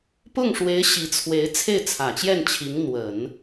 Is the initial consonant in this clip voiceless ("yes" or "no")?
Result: yes